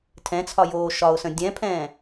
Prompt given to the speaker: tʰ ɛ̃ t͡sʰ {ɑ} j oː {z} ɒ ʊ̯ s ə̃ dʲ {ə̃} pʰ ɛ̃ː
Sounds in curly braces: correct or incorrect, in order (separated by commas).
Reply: incorrect, incorrect, incorrect